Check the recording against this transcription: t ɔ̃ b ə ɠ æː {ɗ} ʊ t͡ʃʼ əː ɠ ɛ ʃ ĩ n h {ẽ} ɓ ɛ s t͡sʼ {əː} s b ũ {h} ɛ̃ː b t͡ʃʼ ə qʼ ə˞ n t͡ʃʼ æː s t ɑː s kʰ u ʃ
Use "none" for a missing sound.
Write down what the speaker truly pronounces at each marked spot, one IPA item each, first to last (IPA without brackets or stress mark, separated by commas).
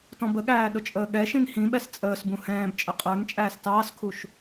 ɗ, ĩ, əː, h